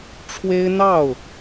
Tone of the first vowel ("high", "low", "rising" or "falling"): high